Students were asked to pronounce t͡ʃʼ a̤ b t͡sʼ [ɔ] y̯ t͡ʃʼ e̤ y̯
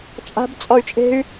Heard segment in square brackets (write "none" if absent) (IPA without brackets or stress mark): ɔ